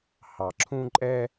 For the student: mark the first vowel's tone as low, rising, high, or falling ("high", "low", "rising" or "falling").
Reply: low